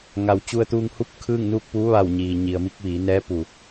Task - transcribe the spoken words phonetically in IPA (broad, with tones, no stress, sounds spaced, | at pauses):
ŋ a˩ w t͡ɕ u˧ ə̯ t̪ uː˧ ŋ h u˥˨ p̚ kʰ ɯː˥˨ ŋ n uː˥˨ k̚ p uː˧˥ ʋ a˧˩ w ɲ iː˩ ɲ i˩ ə̯ m i˧ k̚ ʋ iː˩˧ n ɛː˧˥ p u˩